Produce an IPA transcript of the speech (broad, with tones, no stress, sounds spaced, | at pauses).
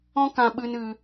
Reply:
ɔ̃˦ k ã˧ ɓ ɨ˧ n ɨ˧